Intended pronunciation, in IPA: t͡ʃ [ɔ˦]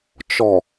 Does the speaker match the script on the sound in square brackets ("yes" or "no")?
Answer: no